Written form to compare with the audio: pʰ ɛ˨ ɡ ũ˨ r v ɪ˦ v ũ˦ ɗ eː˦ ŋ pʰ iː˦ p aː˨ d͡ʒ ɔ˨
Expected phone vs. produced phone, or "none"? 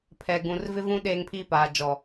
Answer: none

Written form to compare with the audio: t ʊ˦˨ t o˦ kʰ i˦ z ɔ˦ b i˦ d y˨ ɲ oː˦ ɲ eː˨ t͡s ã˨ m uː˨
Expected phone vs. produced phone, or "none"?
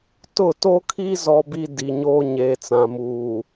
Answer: y˨ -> i˨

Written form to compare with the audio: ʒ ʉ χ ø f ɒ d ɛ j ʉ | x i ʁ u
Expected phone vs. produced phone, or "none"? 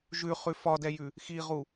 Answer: ø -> ʉ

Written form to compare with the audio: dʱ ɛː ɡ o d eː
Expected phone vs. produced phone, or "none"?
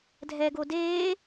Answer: none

